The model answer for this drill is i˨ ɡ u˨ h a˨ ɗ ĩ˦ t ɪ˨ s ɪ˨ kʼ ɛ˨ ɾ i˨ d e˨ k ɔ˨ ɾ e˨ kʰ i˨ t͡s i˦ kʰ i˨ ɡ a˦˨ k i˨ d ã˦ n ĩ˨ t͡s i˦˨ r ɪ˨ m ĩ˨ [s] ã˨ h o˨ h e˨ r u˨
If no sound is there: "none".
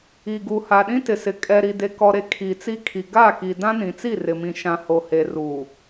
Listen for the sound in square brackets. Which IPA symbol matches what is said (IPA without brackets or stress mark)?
ʃ